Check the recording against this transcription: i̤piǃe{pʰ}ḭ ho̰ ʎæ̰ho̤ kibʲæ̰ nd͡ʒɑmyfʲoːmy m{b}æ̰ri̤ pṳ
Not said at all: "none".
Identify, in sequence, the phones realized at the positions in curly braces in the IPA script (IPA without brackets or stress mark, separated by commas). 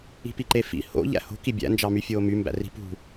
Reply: f, b